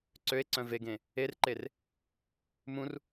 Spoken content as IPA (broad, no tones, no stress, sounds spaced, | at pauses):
ǀ ø e̯ ǀ œ̃ v e ɡ ẽ | e r ǃ e r | m ũ r